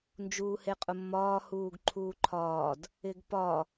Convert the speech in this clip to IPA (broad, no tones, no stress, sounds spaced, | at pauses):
n d͡ʒ uː h e qʼ ʊ mː ɒː h uː ɡ ǃʰ uː ǃʰ ɒː d | ɪ ɡ p ɒ